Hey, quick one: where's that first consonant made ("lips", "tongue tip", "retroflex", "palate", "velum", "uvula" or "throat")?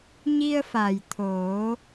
palate